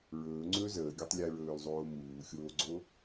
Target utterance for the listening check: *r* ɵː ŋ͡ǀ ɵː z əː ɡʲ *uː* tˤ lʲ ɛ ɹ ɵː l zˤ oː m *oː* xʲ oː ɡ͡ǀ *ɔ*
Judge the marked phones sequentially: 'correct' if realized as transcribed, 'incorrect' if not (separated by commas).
incorrect, incorrect, incorrect, incorrect